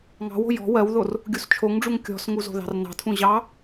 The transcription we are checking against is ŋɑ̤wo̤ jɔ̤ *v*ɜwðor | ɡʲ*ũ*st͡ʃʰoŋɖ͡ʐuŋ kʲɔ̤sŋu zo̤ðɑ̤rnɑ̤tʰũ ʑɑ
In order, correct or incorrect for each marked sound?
incorrect: w, incorrect: u

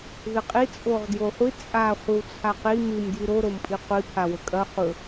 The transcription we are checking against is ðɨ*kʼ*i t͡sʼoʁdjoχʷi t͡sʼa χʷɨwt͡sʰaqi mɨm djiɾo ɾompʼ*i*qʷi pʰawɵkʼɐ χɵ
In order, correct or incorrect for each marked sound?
incorrect: qʼ, correct

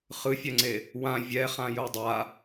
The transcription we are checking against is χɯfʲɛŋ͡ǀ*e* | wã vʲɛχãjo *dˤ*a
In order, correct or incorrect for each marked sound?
correct, correct

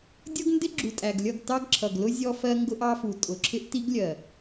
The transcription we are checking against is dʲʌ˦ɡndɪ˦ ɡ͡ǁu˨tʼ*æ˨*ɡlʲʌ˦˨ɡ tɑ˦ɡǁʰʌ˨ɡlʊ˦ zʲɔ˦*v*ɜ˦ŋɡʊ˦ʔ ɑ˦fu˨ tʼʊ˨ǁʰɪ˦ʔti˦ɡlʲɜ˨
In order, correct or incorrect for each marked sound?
correct, incorrect: f

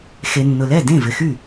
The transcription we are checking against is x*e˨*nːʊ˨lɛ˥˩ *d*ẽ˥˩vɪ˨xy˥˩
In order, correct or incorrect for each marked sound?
correct, correct

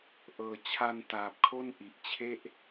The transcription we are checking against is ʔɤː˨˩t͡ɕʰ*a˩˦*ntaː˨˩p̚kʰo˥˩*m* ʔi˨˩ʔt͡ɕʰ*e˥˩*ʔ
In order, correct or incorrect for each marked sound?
incorrect: a˧, incorrect: n, correct

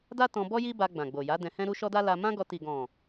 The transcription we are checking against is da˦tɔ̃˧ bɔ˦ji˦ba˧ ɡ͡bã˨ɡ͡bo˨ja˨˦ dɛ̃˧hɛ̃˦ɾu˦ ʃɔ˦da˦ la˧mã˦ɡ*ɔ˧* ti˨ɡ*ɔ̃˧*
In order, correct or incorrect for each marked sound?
correct, incorrect: ɔ̃˨

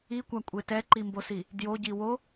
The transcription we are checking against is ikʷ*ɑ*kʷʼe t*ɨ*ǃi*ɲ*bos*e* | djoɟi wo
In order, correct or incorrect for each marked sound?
incorrect: a, incorrect: ɛ, incorrect: m, incorrect: i

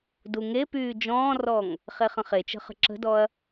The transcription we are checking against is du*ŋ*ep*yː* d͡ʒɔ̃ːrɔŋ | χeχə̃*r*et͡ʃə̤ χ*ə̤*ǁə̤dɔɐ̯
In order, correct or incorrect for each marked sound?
correct, correct, incorrect: χ, correct

